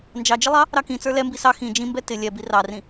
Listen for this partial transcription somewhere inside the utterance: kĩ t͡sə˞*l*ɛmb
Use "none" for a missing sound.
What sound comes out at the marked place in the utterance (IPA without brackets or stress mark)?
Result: l